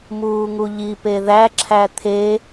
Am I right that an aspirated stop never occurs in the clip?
no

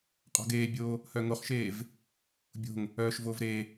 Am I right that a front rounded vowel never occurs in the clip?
no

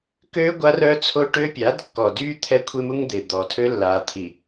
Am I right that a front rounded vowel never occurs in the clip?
no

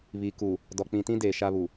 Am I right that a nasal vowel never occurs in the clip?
no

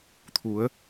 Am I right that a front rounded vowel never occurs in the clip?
yes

